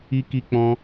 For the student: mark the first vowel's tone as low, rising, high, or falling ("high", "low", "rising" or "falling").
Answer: high